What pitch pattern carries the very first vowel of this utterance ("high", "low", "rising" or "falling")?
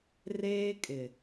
high